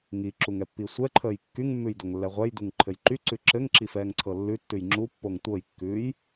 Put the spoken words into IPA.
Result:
ŋ i ǁ u ŋ ɛ pː i sʷ ɛ ǃʰ əː j kː y ŋ mː ʉ j d o ŋ lː ɛ ʁʷ ɛ j d u ŋ ǃʰ ɘ j ǃ y ǀ ʉ ǁ ɘ ŋ ǁ i f ɛː ŋ ǀʰ ɤ lː ʉ tː ʉ j ŋ͡ǁ u pː o ŋ tʷ ɤ j kː ʉː j

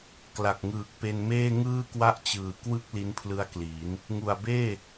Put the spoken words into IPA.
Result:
k l a˨˩ k̚ ŋ ɯː˨˩ k̚ p e˧ n m eː˥˩ ŋ ɯː˥˩ k w a˥˩ ʔ t͡ɕ ɯː˨˩ k w ɯ˥˩ k̚ l i˦˥ n pʰ l ɯ˦˥ a̯ k l iː˩˦ n | ŋ u˨˩ a̯ b eː˥˩

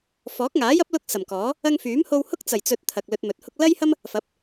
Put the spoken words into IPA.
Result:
f ɔː˨˥ k̚ ŋ aː˨˥ j ɐ˥ p̚ l ʊ˧ k̚ s ɐ˨˩ m k ɔː˨˥ | ɐ˧ ŋ f yː˨˥ m h o˧ w h ʊ˥ k̚ t͡s ɐ˨˩ j t͡s ɵ˨ t̚ t̪ʰ ɐ˨ k̚ l ɵ˧ t̚ m ɵ˨˥ t̚ h ʊ˥ k̚ l ɐ˥ j h ɐ˥ m | f ɐ˨˥ p̚

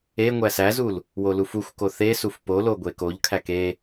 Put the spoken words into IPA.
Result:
e ŋʷ æ s æ z u l | w o l u f u xʷ k o θ e s u f p o l o ɡʷ e k o ʎ kʰ æ k e

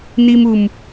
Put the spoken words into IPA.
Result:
n̪ i˦ m u˧ m

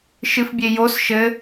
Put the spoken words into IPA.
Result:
ʃ ɨ f bʲ e j o s ʃ ɘ

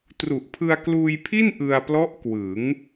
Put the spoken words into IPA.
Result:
t r u˨˩ ʔ pʰ ɯ˧ a̯ k l uː˧ j pʰ i˥˩ n ʔ ɯ˧ a̯ p l ɔ˦˥ ʔ k w ɯ˩˦ ŋ

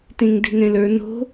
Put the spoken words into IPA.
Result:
t ẽ ŋ d e̤ ŋ ɛ̃ l ə˞ n o̤

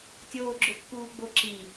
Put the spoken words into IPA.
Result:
tʲ oː ɡ͡ǁ ʊ pː uː ɡ͡b o ǁ i

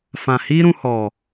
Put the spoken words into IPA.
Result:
f ã˨ h iː˦ ɾ ũ˧ h ɔ˨

